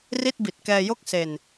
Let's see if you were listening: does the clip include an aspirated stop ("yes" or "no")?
no